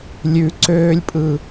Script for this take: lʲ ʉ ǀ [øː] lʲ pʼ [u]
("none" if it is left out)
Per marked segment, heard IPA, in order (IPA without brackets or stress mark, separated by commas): øː, ɯ